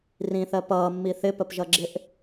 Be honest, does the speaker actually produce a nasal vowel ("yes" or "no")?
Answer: yes